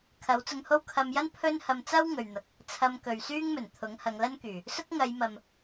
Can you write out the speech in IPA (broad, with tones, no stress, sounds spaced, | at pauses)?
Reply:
kʰ ɐ˨˥ w t͡s ʊ˧ ŋ h o˥ w kʰ ɐ˧ m j ɐ˥ n pʰ ɵ˥ n h ɐ˧ m t͡s ɐ˥ w ŋ ɵ˨ ɥ n̪ ɐ˨ k̚ | t͡sʰ ɐ˧ m k ɵ˨ ɥ s yː˥ ŋ m ɵ˨˩ n t̪ʰ ʊ˨˥ ŋ h ɐ˨˧ ŋ l ɐ˥ n k yː˨˩ | s ʊ˥ k̚ ŋ ɐ˨˧ j m ɐ˨ m